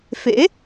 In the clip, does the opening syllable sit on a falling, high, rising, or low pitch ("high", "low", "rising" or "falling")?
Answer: rising